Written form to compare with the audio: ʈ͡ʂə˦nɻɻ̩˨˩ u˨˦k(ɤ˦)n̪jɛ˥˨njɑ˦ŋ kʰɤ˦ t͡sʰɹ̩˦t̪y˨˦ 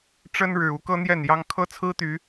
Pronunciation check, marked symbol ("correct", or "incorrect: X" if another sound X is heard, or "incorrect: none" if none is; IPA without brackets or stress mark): correct